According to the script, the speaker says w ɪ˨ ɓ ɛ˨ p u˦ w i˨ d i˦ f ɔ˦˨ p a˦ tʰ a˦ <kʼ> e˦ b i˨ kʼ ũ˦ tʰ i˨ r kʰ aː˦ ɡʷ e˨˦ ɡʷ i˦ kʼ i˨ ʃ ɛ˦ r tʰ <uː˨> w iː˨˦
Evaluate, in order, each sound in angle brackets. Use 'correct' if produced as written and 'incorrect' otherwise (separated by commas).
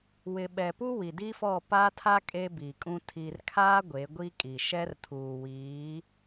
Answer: correct, correct